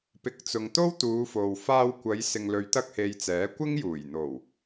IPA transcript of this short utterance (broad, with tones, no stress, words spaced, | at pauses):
pɪ˨˥k̚t͡sʊ˨ŋ t̪o˥wt̪uː˨˧ fo˨w faː˧w kʷɐ˨˧j sɪ˨ŋlɵ˨˧ɥt̪ɐ˧k̚he˨j t͡sɛː˨˥kʷɪ˥ŋjuː˨˩j n̪o˨˩w